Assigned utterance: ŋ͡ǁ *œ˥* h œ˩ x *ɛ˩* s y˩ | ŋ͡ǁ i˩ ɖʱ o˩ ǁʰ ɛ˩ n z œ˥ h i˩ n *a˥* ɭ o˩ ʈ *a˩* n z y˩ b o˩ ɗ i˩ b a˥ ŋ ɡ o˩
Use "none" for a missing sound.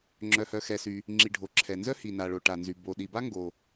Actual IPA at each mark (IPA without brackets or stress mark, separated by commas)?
œ˩, ɛ˩, a˩, a˩